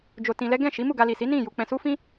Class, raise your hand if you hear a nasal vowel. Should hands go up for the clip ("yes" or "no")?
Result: yes